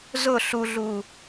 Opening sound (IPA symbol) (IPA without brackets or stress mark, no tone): z